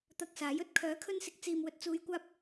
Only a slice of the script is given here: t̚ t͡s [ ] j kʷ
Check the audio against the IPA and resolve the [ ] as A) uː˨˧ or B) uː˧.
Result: A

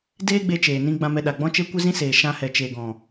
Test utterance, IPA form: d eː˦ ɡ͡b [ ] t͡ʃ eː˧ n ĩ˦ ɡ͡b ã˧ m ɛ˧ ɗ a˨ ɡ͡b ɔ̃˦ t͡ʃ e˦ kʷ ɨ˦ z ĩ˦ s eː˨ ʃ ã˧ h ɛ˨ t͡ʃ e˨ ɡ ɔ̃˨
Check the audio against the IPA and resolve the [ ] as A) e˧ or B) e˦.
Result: A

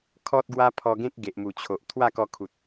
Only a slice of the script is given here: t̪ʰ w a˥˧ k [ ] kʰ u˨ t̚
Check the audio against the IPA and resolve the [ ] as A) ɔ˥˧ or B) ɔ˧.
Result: B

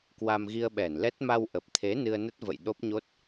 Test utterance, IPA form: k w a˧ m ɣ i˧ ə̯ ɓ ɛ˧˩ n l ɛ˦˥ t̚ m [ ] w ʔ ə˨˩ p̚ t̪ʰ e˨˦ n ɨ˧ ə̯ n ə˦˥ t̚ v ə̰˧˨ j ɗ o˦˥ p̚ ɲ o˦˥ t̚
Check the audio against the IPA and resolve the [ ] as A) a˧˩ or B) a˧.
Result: B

